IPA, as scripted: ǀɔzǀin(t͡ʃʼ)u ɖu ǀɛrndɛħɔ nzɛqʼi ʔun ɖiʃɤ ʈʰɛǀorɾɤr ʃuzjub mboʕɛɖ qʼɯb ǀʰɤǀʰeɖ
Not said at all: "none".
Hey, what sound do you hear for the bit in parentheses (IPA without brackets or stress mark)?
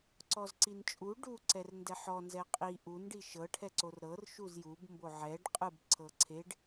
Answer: t͡ʃʼ